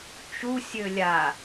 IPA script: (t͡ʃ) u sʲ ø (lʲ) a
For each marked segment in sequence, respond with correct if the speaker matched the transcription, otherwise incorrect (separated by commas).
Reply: correct, correct